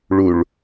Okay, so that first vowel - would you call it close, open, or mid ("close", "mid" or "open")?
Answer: close